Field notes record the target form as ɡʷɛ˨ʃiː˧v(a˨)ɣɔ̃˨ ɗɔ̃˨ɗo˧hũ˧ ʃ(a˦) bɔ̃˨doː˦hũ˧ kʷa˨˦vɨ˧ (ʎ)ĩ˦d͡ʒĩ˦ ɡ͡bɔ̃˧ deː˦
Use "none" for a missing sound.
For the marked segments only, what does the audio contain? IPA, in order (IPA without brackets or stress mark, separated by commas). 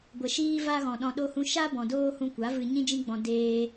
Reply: a˧, a˦, ɲ